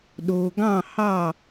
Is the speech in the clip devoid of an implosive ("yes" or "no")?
no